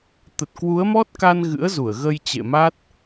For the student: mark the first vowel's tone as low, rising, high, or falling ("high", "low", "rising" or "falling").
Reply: low